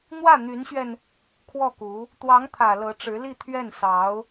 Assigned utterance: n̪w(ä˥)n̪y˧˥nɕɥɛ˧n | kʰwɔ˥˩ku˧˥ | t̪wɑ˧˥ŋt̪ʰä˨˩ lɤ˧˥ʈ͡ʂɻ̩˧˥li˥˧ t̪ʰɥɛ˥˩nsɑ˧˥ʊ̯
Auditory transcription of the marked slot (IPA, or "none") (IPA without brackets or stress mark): ä˥˩